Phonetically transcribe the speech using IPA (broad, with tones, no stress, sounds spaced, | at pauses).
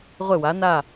ʁʷ ɪ˥˨ w a˨˥ n a˥˨